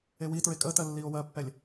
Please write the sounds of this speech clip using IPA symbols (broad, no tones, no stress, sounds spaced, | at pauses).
e w i t ɹ e kʼ əː t ɜ lː iː o̯ w ɜ pː ɛ lʲ